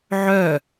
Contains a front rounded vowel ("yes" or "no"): yes